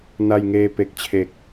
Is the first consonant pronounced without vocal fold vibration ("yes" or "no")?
no